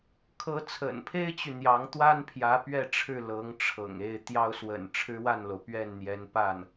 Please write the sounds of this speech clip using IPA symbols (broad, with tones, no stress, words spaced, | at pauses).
kʰɤ˧˥t͡sʰə̰˨˩npʰe˥ɪ̯t͡ɕy˨ n̪jɑ˧˥ŋ t̪wa˥npʰjä˧˥ pɥɛ˥˧ʈ͡ʂʰɻ̩˥˩ lɤ˧˥ŋʈ͡ʂʰɤ̰˨˩ŋe˥˩ɪ̯ t̪jɑ˥ʊ̯swə̰˨˩n ʈ͡ʂʰɻ̩˥wa˥˩nlo˩ʊ̯ pɥɛ˥˩nn̪jɛ˧˥n pa˥˩n